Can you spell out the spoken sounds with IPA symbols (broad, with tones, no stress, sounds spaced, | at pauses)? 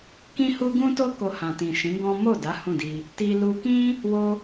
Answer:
k ĩ˦ h u˦ ɡ ũ˦ t o˦ k o˧ h ã˨ t ĩ˨ ʃ ĩ˨˦ ɡ ɔ̃˦ m o˦˨ d a˨˦ h ũ˦˨ d i˧ | t i˧ l u˧ k ĩ˦ | w o˧